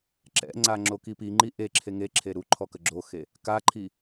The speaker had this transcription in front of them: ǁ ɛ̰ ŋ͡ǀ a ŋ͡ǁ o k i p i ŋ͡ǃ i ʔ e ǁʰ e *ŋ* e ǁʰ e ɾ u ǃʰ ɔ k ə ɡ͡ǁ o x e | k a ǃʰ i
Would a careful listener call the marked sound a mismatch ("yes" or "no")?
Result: no